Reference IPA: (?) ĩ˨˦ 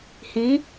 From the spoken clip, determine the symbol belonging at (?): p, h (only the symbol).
h